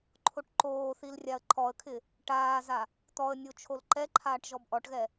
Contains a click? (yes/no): yes